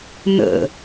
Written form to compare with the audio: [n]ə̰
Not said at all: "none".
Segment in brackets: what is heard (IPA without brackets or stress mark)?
n